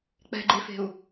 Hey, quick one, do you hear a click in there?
yes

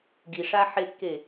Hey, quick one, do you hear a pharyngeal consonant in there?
yes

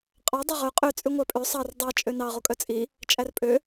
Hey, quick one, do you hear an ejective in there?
yes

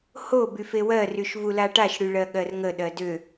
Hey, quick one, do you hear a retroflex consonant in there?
yes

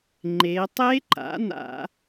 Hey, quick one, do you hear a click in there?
yes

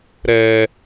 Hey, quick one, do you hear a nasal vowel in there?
no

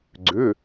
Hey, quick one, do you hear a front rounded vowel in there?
yes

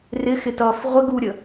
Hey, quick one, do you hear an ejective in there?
no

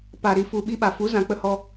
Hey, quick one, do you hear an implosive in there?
yes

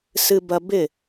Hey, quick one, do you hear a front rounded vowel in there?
no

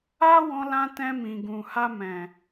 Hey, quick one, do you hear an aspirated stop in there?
no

